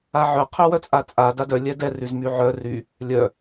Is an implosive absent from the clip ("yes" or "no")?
yes